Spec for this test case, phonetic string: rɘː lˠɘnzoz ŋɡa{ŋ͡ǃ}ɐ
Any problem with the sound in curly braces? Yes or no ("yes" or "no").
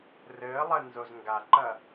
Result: yes